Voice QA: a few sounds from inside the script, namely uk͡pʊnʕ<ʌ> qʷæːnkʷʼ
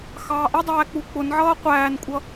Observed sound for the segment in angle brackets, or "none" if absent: ʌː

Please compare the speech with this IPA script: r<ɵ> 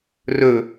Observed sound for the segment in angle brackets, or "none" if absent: ɵ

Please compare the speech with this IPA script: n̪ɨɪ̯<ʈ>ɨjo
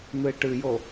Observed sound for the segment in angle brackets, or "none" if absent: ʈ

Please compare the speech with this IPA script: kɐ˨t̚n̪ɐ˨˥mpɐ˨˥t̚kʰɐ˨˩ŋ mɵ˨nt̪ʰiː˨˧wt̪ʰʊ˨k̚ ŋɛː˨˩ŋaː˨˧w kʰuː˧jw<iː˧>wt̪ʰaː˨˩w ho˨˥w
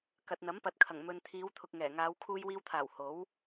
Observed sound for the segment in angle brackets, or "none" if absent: iː˧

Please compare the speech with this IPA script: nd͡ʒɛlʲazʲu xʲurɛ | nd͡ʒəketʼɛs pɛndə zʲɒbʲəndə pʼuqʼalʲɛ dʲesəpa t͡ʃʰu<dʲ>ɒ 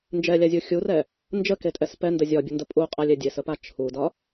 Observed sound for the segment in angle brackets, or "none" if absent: d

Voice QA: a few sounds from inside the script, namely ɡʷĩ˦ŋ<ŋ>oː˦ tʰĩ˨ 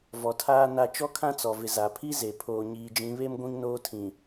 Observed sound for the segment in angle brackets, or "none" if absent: n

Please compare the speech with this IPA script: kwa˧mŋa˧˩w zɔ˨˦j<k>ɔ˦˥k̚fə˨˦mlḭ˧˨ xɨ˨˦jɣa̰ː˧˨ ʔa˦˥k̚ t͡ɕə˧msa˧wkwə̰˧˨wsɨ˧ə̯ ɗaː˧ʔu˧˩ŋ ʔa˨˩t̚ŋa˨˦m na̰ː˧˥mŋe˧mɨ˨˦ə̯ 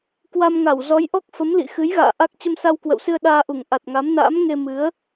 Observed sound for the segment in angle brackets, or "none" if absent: ʔ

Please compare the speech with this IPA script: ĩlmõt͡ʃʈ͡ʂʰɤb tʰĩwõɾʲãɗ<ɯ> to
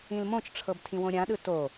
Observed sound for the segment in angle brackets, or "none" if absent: ɯ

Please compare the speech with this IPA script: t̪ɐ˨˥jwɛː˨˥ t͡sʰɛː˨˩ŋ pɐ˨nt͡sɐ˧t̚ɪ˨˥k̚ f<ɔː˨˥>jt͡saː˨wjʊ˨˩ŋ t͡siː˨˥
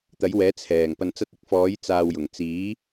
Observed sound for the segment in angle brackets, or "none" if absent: ɔː˨˥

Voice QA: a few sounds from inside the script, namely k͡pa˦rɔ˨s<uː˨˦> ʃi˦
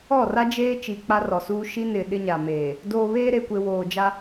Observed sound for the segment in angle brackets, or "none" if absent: uː˦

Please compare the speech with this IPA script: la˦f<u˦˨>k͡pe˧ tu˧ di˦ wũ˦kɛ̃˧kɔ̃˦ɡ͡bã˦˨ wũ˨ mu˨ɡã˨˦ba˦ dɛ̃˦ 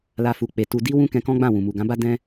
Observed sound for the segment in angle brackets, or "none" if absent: u˧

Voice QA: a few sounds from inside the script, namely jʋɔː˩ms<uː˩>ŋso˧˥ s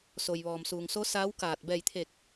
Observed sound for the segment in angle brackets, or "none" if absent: uː˩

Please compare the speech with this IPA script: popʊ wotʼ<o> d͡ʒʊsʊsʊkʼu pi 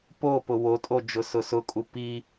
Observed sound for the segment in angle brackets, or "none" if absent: o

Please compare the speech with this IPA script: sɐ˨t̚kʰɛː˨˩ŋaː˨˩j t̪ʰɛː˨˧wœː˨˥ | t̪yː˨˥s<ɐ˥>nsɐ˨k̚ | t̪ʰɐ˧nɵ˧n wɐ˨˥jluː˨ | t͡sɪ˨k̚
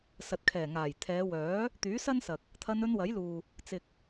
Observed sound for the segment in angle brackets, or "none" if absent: ɐ˥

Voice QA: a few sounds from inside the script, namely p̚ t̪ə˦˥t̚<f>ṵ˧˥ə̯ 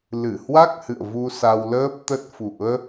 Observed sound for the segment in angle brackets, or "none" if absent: f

